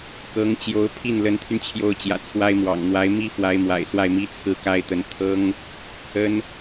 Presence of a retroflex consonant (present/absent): absent